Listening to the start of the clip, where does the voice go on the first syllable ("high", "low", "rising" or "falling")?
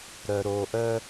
low